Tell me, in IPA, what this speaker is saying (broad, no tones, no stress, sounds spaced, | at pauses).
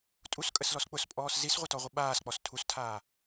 tʼ u s kʼ ə s l ɔ s k͡p ʊ s pʼ ɔː s z i s ʁʷ ə t ɔ ʁʷ ə ɓ aː s k͡p ɔ s tʰ u s tʰ aː